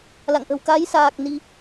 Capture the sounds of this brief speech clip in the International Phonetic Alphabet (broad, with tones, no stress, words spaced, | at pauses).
la̰˧˨ŋʔə̤˨˩w ka˨˦jsaː˨˩k̚ ni˧